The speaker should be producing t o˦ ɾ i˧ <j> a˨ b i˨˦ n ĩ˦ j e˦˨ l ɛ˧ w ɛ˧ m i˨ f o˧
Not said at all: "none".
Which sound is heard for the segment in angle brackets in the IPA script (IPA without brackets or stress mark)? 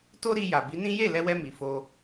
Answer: j